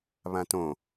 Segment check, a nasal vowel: present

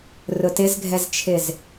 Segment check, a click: absent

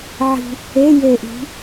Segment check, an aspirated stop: absent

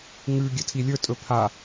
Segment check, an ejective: present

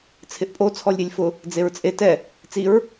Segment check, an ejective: present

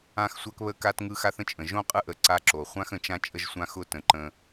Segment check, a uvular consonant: present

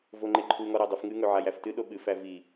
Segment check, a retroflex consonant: absent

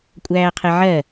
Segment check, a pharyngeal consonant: present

